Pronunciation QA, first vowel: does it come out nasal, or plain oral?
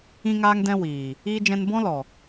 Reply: nasal